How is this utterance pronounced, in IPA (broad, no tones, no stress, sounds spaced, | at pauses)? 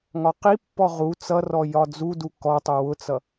ŋ ɒ q i pː ɔ ʁ u t͡s ʌ r ɔ j ɒ d͡z u d u k ɔ tˤ ɪ w ʊ t͡s ʌ